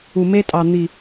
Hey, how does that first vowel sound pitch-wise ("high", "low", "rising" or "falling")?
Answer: low